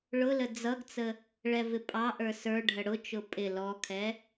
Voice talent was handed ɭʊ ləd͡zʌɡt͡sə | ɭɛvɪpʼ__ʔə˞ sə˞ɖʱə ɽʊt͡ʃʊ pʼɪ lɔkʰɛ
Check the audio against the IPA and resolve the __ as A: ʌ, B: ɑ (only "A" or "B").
B